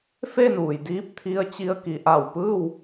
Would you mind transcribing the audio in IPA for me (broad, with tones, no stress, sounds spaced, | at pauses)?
f e˥˨ n uː˩ j d iː˧˥ p̚ t̪ʰ i˧˥ ə̯ t͡ɕ i˧ ə̯ k i˩˧ ʔ a˧˩ w p ɯː˥˨ w